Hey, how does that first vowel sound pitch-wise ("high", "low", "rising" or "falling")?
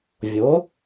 rising